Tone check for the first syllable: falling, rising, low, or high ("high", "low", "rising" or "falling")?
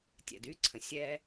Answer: low